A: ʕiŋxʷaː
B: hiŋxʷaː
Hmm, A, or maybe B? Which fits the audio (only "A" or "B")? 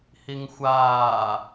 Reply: B